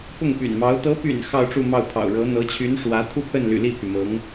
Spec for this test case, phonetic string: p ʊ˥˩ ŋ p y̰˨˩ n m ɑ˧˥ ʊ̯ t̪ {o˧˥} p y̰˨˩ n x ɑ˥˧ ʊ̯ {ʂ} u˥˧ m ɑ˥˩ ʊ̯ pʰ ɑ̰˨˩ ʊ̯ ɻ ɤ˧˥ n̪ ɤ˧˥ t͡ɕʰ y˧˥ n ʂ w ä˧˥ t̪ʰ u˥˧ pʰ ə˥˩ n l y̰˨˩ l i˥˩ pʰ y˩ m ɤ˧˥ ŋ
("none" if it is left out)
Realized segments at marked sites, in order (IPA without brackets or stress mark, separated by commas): ɤ˧˥, ʈ͡ʂ